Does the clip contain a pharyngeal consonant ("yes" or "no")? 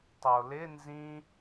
no